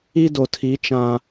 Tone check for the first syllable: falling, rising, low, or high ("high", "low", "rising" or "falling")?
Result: high